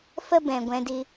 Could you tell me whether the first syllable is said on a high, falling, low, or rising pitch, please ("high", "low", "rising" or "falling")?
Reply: high